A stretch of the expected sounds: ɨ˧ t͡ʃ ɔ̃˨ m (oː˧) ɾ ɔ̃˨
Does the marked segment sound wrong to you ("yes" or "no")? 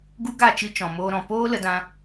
no